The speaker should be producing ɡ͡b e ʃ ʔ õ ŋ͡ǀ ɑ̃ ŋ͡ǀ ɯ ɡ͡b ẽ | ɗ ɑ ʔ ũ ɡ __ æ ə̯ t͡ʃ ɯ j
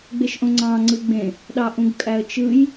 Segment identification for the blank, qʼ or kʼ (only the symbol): kʼ